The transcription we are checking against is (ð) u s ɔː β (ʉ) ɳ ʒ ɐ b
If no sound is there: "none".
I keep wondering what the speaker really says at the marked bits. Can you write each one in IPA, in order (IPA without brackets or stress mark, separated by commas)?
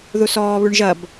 ð, ʉ